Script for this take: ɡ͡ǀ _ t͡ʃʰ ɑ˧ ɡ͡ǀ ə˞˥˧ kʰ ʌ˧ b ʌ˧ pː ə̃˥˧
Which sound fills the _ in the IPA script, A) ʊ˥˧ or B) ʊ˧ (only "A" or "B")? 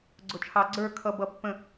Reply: B